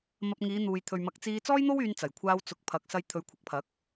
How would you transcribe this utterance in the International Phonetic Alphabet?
m ɐ˧ p̚ ŋ iː˨˧ n̪ uː˨ j t̪ʰ ɵ˨ ɥ m ɐ˨˥ k̚ t͡s iː˧ t͡s ɔː˥ j n̪ o˥ w yː˧ n t͡s ɐ˨˩ j kʷʰ aː˧ w t͡s ʊ˨ k̚ pʰ ɐ˨ k̚ s ɐ˧ j t̪ʰ ɵ˨˧ ɥ kʷʰ ɐ˨˥ k̚ pʰ ɐ˨˥ k̚

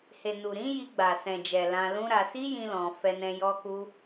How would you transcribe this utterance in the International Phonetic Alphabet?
h e˨ n u˨ ɾ ĩ˨˦ j i˧ ɡ͡b a˨ s ɛ̃˨ d͡ʒ ɛ˨ l ã˧ l ũ˦ ɾ a˧ s i˦ j ĩ˦ l ɔ̃˧ f ɛ˧ n ɛ̃˧ j ɔ˦ k u˦

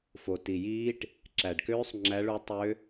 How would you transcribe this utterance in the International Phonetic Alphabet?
f o˨ t i˨ j iː˦˥ ʈ | ǁ æ˨ ɖ k øː˦˥ sˤ ŋ͡ǁ æ˦˥ ɭ u˦˥ tˤ ø˦˥

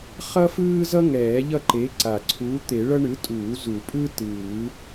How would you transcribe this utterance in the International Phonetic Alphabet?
χ ʌ˥ f ɯː˥ z ʌ˥ ŋ ɛː˨˩˦ ʎ ʌ˥˨ ǃ e˨˥ ǀ a˨˩ ǀʰ uː˨˥ t̪ e˨˩˦ ɭ ʌ˥ ɳ ɯ˨˥ tʼ uː˨˩˦ z u˨˩˦ pʼ ɯ˥ t ɯː˨˩˦

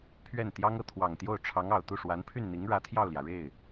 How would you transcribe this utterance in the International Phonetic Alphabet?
pʰ ɥ ɛ˥˩ n t̪ j ɑ˥ ŋ ɤ˥˩ t̪ʰ w ɑ˨˩ ŋ t̪ j o˥˩ ʊ̯ ʈ͡ʂʰ ɑ˧˥ ŋ ɑ˨˩ ʊ̯ t̪ u˥˩ ʂ w a˧˥ n pʰ y˥˩ n n̪ i˧˥ ŋ ɻ ä˧˥ t̪ʰ j ɑ˥˩ ʊ̯ l j ä˩ ɻ e˥˩ ɪ̯

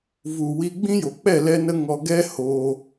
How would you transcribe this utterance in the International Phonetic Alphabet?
v u˨ w i˧ ɡ͡b ĩ˦ j o˨ k͡p ɛ˦˨ l ɛ˦ n ə˦ ŋ ɔ˧ ɡ ɛ˦ h oː˧

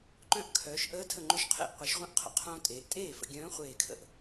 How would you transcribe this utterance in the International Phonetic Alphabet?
ǃ œ̃˧˥ ʔ kʰ œː˩˧ ʃ ʔ əː˧˥ tʰ ə˧˩ ŋ͡ǃ ø˧˥ ʃ qʰ ḛ˥˩ ʔ qʷ e˩˧ ʃ ʁʷ œ̃˧˥ ʔ qʰ ə̰˩˧ qʰ õː˧ tʼ eː˩˧ ʔ tʼ eː˥˩ f ə̰˧ ɡʲ œ̃ː˧˥ χʷ eː˧˩ kʰ ə̰˥˩ ʔ

